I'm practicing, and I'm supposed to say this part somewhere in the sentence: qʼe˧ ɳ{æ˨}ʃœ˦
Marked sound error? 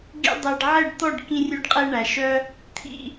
no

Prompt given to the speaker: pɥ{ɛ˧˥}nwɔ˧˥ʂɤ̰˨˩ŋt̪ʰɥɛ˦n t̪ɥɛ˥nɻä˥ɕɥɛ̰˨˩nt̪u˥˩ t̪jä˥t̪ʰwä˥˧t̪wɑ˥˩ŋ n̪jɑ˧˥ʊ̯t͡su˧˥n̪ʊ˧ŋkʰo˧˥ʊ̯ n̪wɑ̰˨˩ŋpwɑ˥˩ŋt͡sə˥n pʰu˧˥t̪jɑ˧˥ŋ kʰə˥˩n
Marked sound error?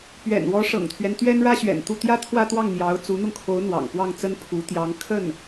yes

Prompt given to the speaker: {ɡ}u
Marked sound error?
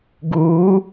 no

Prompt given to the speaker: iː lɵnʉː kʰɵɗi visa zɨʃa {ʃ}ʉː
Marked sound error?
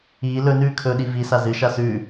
yes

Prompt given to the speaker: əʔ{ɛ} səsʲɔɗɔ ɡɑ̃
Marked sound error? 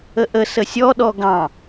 yes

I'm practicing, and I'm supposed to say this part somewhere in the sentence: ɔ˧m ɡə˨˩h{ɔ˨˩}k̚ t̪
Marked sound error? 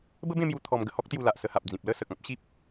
yes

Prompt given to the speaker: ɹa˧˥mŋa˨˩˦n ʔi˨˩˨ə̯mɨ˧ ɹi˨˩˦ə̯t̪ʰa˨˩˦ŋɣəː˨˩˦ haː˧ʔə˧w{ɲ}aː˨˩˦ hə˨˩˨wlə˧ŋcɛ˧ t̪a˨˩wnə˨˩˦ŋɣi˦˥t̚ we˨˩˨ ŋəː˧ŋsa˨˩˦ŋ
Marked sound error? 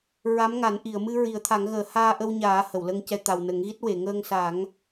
no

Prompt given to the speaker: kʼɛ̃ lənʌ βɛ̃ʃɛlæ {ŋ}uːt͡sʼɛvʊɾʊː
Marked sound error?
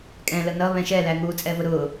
no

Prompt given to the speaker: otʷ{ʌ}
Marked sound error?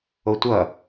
no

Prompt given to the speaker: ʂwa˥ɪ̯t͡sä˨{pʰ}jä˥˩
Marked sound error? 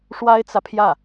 no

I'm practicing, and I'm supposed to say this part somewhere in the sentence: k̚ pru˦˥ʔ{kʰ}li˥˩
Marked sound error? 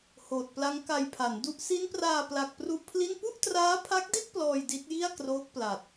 yes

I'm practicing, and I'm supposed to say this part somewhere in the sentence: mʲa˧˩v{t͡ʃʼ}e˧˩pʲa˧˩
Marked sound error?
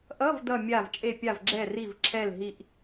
no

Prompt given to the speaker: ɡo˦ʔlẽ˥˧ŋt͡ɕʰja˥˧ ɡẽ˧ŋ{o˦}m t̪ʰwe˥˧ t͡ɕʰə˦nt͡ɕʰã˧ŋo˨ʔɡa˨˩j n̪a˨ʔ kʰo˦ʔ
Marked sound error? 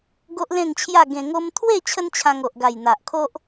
no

